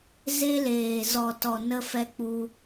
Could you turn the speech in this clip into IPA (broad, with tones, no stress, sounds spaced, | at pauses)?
z e˧ l eː˨ z ɔ˨ t ɔ˨ n ə˧ f ɛ˧ k͡p u˧